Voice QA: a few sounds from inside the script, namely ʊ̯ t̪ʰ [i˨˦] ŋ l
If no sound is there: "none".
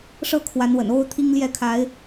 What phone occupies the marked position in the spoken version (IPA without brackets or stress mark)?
i˦